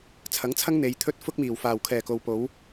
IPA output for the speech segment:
t͡sʰ ɐ˨˥ ŋ t͡sʰ ɐ˥ ŋ n̪ e˨˧ j t̪ʰ ɵ˥ t̚ f ʊ˥ k̚ m iː˨˩ w f aː˨˩ w kʰ ɛː˨˩ k o˨ w p o˨˥ w

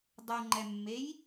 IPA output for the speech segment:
dˤ u ŋ͡ǃ ɛ mː e j

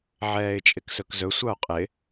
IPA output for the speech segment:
ʕ ɛː ɪ̯ t͡ʃʼ ɪ k s ɵ k z ɵ sʷ ɑ ʊ̯ qʼ ɪ

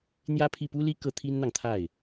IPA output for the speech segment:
n̪ j ä˥ pʰ i˥˩ p u˥ l i˥ k ɤ˥ t̪ʰ i˥ n n̪ ɑ˨ ŋ t̪ʰ a˥˩ ɪ̯

